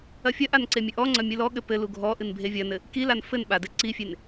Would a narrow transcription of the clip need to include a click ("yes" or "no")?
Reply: yes